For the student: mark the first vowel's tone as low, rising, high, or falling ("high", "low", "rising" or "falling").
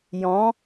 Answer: rising